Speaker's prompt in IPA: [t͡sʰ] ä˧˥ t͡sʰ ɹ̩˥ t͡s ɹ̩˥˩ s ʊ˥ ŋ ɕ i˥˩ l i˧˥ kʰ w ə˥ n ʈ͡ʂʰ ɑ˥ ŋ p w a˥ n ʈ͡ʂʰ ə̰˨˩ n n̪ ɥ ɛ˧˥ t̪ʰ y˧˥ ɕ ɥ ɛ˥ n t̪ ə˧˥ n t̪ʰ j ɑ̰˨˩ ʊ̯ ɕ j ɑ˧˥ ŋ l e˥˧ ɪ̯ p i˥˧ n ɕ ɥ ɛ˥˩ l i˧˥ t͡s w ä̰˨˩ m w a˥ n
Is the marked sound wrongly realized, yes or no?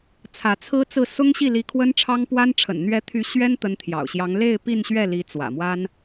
no